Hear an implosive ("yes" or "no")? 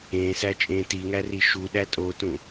yes